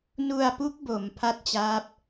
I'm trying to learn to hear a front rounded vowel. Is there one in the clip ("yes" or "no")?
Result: no